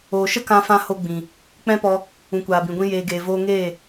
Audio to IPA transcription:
oː˨ ʃ ə˦ k ã˧ f ã˧ h o˧ ɡ͡b ĩ˨ | k͡p ɛ̃˦ p ɔ˧ | ũ˨ kʷ aː˨ b ĩ˨ ɡʷ ĩ˧ j eː˨ ɡ eː˨ v oː˧ ŋ eː˦˨

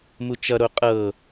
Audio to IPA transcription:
m u t͡ʃ ʌ ɾ o qʼ ɤ

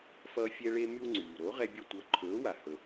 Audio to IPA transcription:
f ʌː˧ fʲ ɛ˧ ɭ e˧ m y˧ w ŋ͡ǀ yː˩ ɾ o˩˥ ʁ ɛ˧ bʲ ʌ˧ tʷ ʌ˩˥ ǃʰ ɵː˩˥ w a˩ h ɵ˩

